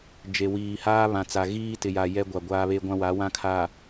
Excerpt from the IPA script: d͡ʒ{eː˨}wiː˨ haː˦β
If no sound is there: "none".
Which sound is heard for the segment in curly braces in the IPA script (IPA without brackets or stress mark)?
e˨